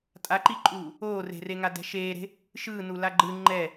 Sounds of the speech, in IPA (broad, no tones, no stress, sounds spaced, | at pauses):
tʼ a ǃ i ǃʼ uː | oː r e̤ r e ŋ a d ɛ̤ ʃ eː ɾ e̤ | ʃ ɯː n u l a ɡ͡ǃ ɯ ŋ͡ǃ ɛ